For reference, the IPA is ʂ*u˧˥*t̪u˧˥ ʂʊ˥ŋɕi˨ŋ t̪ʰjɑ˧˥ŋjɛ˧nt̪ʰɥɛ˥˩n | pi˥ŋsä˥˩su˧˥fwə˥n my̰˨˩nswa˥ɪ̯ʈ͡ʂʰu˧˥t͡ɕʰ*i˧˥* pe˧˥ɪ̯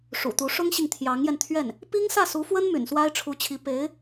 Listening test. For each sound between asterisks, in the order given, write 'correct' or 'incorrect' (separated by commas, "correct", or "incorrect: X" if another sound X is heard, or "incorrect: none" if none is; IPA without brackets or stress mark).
incorrect: ṵ˨˩, correct